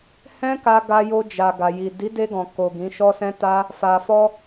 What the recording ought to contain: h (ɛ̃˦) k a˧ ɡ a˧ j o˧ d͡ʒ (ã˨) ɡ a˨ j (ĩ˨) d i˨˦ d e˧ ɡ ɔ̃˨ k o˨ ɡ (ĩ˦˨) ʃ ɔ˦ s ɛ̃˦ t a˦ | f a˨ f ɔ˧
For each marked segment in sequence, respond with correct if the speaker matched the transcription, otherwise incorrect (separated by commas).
correct, incorrect, incorrect, incorrect